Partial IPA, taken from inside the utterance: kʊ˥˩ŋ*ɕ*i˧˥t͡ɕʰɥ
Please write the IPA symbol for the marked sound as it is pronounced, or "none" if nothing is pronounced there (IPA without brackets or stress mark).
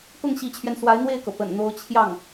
ɕ